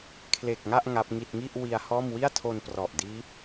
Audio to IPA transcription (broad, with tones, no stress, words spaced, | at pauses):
kʰle˨˩k̚ŋa˥˩ʔ ŋa˦˥p̚ŋi˥˩t̚ ŋi˥˩ʔ wi˧a̯hɔː˥˩m wi˥˩a̯tʰo˧nprɔ˨˩ʔdiː˦˥p̚